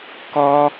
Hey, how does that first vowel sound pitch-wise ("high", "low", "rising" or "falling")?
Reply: high